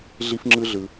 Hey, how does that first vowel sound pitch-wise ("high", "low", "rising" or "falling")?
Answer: high